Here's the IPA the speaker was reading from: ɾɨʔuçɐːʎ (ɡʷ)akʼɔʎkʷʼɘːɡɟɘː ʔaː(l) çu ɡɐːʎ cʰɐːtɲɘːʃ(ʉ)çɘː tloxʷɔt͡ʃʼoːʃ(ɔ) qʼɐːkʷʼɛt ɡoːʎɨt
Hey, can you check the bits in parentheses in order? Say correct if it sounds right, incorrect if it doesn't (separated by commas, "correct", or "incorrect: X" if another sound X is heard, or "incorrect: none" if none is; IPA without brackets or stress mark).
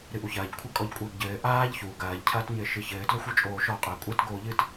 incorrect: kʷʰ, incorrect: ʎ, incorrect: ɨ, correct